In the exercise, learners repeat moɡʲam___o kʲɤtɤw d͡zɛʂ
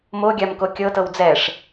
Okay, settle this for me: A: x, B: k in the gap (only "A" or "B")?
B